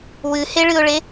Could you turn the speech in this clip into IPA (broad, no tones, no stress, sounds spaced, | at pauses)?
w ɨ h e ɭ ɨ ʊ̯ ɭ e